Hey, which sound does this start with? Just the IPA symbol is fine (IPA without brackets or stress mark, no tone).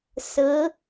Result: s